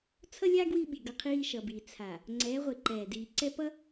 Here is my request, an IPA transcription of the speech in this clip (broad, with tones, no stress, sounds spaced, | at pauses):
t͡sʰ ʌ˦ lʲ a˦ ɡ w i˦ ɓ i˨ ɡ ʌ˦ qʰ iː˦ ʃ ʌ˨ b iː˨ t͡sʰ a˨ | ŋ͡ǀ ɛː˨˦ ʁʷ e˨ ǃ ɛː˨ d iː˨ ǀ ɛ˦ p ʌ˦